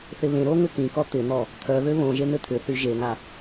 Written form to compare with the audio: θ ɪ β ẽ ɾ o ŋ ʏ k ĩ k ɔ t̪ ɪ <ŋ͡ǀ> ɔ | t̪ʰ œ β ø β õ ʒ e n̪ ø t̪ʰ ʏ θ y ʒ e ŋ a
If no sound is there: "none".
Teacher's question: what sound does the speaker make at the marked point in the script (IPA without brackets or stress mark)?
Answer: n̪